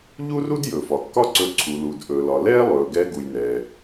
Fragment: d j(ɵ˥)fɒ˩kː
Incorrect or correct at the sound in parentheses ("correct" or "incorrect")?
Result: incorrect